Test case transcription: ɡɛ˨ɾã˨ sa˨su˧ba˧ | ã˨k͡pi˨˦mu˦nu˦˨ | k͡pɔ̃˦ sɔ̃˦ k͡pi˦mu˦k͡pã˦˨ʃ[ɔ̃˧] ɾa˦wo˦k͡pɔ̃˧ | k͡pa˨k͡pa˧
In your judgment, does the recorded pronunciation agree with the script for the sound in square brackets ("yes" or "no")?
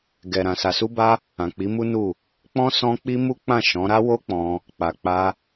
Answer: no